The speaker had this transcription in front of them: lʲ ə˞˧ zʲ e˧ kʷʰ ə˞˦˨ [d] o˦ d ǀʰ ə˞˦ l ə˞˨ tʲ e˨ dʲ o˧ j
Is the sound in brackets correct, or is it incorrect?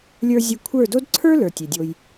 correct